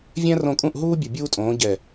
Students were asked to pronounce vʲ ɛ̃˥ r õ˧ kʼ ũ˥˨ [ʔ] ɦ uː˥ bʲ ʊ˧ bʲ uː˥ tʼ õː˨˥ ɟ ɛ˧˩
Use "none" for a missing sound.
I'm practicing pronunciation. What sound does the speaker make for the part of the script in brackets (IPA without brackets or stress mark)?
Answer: ʔ